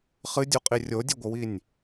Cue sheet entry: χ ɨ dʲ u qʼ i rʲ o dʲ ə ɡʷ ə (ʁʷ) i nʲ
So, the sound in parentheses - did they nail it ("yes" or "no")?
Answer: no